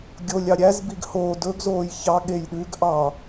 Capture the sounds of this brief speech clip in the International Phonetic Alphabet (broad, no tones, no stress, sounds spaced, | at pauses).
ɡʲ o lʲ ɑ ɾʲ æ z b i ɡ h oː d ɵ ɡ z oː j ç ɑ ɠ e j ɗ ʉ ɡ ʔ ɑ